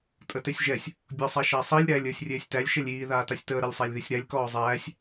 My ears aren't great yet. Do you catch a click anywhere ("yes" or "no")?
no